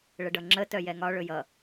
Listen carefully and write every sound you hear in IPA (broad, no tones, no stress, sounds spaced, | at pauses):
ɭ ə ɖ ʌ ŋ͡ǁ ə t œ j ɛ ŋ ɒ ɭ ɵ j ʌ